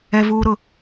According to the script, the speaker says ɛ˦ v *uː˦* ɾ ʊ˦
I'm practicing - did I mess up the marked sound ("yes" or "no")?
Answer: no